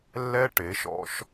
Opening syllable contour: high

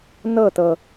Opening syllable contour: falling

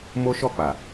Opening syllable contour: high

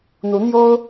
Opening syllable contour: rising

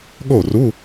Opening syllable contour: falling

